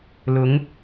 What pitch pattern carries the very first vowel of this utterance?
rising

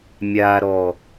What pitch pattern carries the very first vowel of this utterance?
low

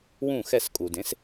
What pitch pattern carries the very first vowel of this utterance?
falling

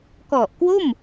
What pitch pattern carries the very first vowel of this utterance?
low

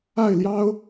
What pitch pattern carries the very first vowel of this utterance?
falling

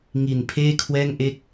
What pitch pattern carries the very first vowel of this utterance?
low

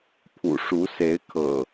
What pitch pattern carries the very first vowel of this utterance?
low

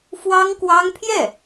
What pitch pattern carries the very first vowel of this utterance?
high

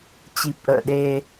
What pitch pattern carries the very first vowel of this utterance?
low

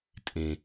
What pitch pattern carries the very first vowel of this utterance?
low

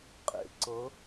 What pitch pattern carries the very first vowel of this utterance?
low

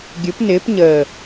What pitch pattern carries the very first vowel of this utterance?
rising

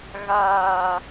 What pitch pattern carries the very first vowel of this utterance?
low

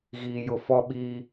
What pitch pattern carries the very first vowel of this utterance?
low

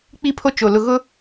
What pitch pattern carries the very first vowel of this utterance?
falling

